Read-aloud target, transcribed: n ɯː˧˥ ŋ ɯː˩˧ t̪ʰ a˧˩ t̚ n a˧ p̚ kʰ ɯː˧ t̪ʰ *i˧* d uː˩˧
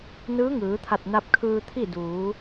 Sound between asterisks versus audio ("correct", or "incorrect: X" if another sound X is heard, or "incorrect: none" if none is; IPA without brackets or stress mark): incorrect: i˥˨